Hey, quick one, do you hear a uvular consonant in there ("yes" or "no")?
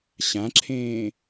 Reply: no